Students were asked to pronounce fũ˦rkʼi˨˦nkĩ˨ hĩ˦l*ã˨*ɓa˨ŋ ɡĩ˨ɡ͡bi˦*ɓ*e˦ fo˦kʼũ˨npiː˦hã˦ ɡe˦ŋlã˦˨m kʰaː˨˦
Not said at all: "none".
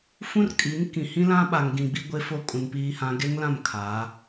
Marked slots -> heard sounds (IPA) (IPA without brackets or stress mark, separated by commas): ã˦, ɡʷ